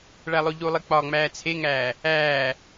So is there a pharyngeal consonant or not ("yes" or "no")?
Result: no